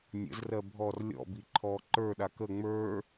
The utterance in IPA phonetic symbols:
nʲə̰zrɜ bʱɔr lʲɔ̰bi ǃʰɔ ǃə˞ɗak ə ŋ͡mə˞

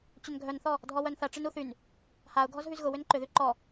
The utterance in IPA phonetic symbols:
t͡ɕʏnɡʱœnθɔ | dʱɔwœnθɐ ʈ͡ʂɪnuθyn | haʊ̯ ɡʱɔzɦyzɣʊ wʏnǃʏðy ǃɔ

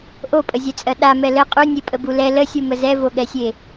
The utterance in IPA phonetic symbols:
ʔopʼəzʲɛt͡sʼɜ ɗamɛ lə qʼunʲepʼəbu lɛ ləsʲumə zɛvoɠɛsʲe

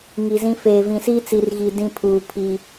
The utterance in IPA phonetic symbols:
ŋi˨zĩ˦ feː˨vĩ˨siː˦ t͡si˨rɣi˨ dĩ˦pʰuː˨ pʰi˦

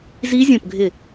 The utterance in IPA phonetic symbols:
zi˦˥zʲõ˦˨pɡʱɪ˦˨

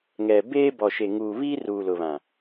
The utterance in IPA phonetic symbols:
ŋɛ˨ beː˦ bɔ˨ʃe˨ŋuː˨ βiː˦ruː˨lʊ˨βã˨

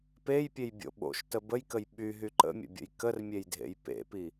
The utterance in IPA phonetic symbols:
pejpʲejbʲo̰ ɓo̰ʃtə bəjkəj ɓyɦy ǃə̰mʲə̰bʲə̰j kərmʲejdʱḛj pḛpi

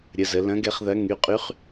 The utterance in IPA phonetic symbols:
ɾʲə˩zə˩ lɐ̃˧˥ɡɛ˧˥χðɐ˧˥ ŋy˩˧˩qʼy˧˥χ

